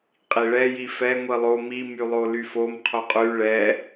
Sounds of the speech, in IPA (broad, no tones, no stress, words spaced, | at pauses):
qʼiɭɛ jifɛ ŋʷilˠo mimylˠo lyfom qʰoqʼy ɭɛ